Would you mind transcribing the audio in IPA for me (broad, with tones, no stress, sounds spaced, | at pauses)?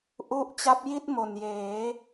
ʔ u˥˩ ʔ t͡ɕ a˦˥ p̚ j i˥˩ t̚ m o˨˩ n j eː˩˦